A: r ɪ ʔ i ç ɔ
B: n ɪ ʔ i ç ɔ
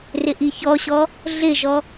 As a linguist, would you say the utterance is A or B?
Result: A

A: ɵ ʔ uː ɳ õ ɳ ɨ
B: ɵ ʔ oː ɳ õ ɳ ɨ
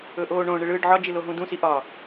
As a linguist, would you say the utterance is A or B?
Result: B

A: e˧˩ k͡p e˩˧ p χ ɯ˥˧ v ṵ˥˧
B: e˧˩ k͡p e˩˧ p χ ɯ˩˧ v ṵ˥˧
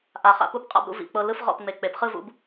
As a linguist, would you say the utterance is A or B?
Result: A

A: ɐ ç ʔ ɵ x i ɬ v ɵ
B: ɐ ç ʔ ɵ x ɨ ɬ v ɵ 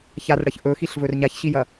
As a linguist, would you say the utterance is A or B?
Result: A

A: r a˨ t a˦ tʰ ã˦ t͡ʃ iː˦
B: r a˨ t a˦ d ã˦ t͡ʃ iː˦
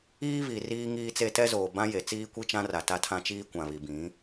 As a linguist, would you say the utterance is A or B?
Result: A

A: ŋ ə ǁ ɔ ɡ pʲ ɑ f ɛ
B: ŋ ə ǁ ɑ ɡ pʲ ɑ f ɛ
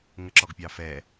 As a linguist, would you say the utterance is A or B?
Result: A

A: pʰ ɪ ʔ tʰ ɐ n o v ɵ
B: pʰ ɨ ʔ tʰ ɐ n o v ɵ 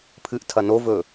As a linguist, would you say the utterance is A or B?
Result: B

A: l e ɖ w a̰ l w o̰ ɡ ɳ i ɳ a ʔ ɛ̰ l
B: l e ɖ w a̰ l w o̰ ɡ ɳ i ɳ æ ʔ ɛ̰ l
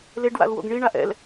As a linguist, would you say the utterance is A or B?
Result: A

